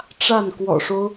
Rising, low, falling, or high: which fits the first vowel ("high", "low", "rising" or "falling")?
falling